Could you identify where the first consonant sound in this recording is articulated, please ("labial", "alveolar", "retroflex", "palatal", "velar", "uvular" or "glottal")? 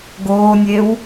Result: velar